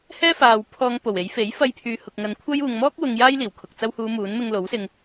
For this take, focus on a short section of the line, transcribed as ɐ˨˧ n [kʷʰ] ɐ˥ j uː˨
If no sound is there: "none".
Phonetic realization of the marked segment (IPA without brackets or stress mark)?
kʷʰ